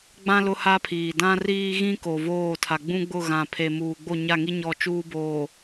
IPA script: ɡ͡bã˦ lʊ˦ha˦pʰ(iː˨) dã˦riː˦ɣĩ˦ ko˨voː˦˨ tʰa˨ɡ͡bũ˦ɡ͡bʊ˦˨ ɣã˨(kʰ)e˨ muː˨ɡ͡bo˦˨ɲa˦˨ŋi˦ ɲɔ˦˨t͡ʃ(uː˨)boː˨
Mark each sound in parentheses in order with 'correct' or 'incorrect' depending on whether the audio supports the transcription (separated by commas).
correct, incorrect, incorrect